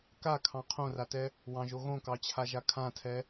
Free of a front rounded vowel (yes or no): yes